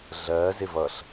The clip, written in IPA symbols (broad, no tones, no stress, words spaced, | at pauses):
ɮɜzɪ vʌɬ